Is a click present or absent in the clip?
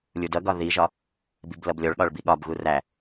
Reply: absent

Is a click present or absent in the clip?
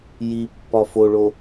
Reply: absent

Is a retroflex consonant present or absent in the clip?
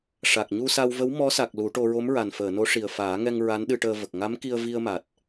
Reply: present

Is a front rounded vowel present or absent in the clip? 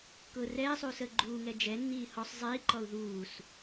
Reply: absent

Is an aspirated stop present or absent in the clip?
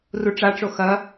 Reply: absent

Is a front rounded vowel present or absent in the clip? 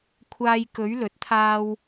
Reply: absent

